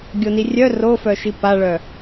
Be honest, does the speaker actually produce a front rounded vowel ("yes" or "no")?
yes